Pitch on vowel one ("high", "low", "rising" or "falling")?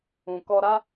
low